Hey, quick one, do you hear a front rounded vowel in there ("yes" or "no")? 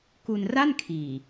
no